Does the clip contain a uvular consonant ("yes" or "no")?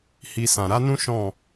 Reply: no